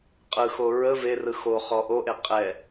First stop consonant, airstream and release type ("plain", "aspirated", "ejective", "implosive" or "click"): ejective